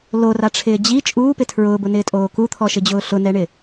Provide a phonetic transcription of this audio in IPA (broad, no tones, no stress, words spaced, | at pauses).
loraʈ͡ʂʰɪː d͡ʑi t͡ʃʼuːpɪ tʰɹʊːbʊnɪːtʼoː kut̪ʰɔʃɪd͡ʑʊː ɬʊnɛɳɪ